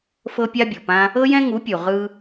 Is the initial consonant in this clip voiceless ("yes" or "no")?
yes